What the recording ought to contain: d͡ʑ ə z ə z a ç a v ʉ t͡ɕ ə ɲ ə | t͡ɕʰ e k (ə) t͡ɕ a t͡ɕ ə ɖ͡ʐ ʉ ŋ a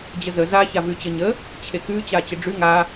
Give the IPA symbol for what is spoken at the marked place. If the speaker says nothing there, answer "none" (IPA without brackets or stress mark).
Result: ʉ